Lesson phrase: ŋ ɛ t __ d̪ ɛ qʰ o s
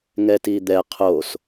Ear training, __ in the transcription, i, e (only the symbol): i